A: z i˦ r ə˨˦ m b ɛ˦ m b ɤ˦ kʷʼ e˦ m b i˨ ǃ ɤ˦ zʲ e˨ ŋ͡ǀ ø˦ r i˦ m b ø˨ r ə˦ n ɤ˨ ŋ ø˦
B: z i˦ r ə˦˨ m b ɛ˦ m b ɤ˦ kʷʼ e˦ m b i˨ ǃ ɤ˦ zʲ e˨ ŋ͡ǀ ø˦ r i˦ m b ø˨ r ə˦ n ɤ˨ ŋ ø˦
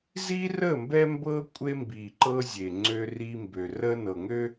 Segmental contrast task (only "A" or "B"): B